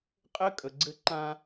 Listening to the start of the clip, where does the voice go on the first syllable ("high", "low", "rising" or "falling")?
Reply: high